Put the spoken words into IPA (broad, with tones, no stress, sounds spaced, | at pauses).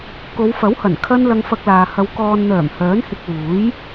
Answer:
k o˨˧ w f ɐ˨˥ w h ɐ˨˩ n kʰ ɐ˧ n l ɐ˧ ŋ f ɐ˧ k̚ l aː˨ h ɐ˧ w k ɔː˨ n n̪ œː˨˩ m h œː˨˥ n h ɪ˧ k̚ w uː˨˥ j